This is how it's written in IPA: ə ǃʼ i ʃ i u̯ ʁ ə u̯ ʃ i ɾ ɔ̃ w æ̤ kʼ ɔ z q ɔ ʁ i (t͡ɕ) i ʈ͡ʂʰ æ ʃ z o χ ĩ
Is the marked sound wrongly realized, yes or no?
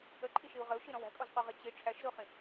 no